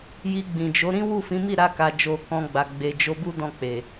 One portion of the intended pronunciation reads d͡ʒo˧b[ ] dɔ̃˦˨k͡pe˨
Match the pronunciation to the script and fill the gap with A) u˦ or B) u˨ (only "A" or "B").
A